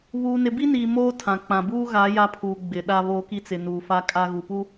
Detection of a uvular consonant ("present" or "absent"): absent